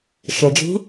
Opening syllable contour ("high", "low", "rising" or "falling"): low